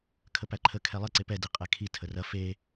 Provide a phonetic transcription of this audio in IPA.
kʰ ə p æ ǃʰ ə kʰ ɛ lˠ ə ǀ e p ɛ d i qʼ ɛ kʰ i tʰ ə r ɐ f e

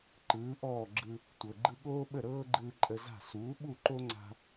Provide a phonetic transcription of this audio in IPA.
ǃ ɯː˩˥ ʔ ɔː˥˩ ɡ͡ǁ ɯ˧ | tʷ ɤ˩ ɡ͡ǃ ɯ˧ ɠ oː˥ ɓ ə˥˩ ɾ ɤː˥ ɡ͡ǃ ɯː˧ ǃʼ ə˧ z a̤˥˩ s uː˩˥ ɓ u˥˩ ǃ o˥ ŋ͡ǀ a̤˧

